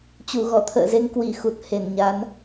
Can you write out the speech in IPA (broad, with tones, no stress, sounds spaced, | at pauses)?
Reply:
t͡ɕ u˧˩ ɣ ɔ˧˩ t̪ʰ ə̰ː˧˨ z e˧ ŋ k w i˧˩ x u˨˩ t̚ h e˧˩ n ɲ a˨˦ n